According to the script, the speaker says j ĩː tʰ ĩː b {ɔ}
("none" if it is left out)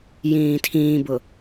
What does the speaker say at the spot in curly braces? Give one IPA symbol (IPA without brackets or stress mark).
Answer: ʊ